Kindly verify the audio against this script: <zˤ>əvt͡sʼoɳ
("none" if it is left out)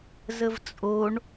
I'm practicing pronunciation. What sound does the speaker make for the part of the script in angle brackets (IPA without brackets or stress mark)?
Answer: z